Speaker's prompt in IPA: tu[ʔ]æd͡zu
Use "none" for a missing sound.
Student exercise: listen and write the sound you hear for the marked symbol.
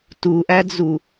ʔ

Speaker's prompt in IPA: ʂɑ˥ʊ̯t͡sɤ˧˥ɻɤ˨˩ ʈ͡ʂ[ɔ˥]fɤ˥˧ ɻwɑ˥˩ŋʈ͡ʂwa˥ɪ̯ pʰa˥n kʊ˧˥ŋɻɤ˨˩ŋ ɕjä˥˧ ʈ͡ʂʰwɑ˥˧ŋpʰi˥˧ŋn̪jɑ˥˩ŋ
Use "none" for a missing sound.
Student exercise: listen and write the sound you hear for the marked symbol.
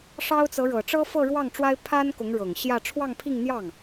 ɤ˥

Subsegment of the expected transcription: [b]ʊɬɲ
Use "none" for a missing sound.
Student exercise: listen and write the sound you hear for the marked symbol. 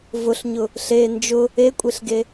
v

